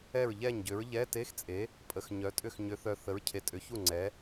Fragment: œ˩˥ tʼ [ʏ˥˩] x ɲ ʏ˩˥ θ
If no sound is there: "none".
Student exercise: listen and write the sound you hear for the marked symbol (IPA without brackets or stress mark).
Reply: ʏ˥˩